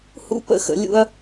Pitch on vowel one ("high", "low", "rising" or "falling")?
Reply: high